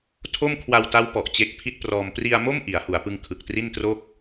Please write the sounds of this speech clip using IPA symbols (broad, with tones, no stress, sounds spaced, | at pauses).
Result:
tʰ o˥˩ m kʰ w a˧ w t a˦˥ w p ɔ˨˩ ʔ t͡ɕ e˦˥ k̚ pʰ i˥˩ t̚ p r ɔː˧ m p r i˧ a̯ m o˥˩ m ʔ i˩˦ a̯ h u˩˦ a̯ p ɯ˧ ŋ kʰ ɯ˨˩ k̚ t r i˥˩ n t r o˥˩ k̚